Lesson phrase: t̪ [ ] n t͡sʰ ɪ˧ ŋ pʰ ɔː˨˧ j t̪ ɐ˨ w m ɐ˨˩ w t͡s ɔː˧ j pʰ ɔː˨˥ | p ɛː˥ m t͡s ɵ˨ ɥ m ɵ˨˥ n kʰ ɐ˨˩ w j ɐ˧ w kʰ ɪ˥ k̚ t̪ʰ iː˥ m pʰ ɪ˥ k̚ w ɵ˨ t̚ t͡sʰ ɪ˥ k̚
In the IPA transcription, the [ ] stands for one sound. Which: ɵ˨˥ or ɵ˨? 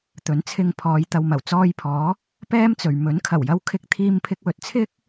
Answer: ɵ˨˥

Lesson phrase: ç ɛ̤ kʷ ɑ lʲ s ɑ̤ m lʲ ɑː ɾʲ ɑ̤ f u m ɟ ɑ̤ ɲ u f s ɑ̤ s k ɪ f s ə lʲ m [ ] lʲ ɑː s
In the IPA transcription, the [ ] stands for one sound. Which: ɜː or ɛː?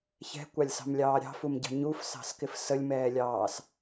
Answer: ɛː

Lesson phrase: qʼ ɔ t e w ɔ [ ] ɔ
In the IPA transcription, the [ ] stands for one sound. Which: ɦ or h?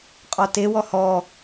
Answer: h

